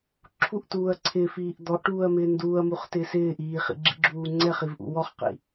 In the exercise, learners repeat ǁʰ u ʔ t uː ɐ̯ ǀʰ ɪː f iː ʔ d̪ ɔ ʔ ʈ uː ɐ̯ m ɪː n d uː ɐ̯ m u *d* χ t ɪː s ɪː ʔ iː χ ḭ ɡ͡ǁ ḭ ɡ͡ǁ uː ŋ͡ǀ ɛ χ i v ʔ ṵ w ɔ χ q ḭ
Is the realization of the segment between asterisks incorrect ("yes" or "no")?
yes